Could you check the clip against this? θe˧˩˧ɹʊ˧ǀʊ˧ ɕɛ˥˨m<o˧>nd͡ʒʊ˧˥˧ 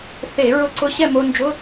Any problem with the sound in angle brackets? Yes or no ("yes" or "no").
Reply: no